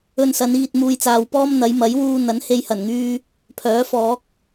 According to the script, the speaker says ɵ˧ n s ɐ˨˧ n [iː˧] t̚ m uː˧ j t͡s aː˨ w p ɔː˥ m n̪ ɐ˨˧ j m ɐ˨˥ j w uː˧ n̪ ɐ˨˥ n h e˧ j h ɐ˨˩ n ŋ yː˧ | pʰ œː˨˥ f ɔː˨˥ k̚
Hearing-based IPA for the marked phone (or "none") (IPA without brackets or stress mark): iː˧